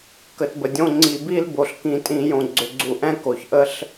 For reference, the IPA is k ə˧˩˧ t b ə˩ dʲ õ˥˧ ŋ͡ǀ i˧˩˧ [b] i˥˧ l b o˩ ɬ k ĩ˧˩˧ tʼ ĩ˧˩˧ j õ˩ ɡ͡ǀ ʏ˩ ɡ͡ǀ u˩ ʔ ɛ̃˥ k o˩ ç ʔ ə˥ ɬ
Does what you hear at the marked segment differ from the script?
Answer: no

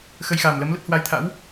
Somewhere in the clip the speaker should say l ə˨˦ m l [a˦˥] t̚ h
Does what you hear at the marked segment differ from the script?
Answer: yes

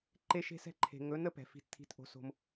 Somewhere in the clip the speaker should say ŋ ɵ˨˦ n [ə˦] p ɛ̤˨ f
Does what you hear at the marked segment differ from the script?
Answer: no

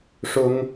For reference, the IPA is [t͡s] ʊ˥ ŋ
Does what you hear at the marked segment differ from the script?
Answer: yes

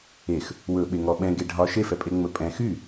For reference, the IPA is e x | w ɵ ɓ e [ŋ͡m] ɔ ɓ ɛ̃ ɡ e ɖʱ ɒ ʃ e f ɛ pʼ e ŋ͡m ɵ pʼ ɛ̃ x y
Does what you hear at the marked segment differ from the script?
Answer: yes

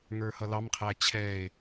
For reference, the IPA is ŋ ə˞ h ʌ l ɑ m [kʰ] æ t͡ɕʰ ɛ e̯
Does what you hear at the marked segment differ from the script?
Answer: yes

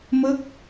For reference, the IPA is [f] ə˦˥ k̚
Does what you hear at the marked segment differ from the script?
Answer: yes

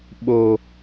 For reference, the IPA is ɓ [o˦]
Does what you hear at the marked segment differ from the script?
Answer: no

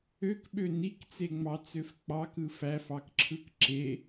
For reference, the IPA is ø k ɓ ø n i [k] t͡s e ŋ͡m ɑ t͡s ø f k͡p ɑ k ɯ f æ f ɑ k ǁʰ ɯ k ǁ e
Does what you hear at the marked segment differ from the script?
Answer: no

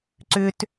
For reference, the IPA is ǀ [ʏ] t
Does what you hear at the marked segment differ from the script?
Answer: no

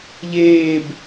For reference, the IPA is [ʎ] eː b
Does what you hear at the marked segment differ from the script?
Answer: no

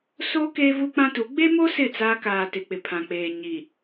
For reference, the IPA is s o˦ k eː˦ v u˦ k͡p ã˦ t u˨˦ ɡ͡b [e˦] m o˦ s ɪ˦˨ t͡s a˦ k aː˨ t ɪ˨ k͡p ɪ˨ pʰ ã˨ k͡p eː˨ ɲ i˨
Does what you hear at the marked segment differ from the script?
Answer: no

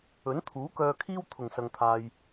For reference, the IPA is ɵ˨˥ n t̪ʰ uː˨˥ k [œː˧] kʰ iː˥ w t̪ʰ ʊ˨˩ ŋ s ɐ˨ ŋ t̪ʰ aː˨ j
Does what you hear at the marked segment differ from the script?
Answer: no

